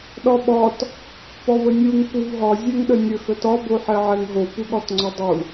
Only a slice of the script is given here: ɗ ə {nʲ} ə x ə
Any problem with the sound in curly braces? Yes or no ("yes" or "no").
no